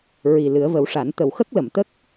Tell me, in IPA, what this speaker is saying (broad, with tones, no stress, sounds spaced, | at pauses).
ɹ i˨˩ l ɨ˨˩˦ ə̯ v ə˨˩˦ w ʂ a˨˩˦ n t̪ ə˨˩ w x ə˦˥ k̚ l ə˨˩˨ m t̪ ə˦˥ k̚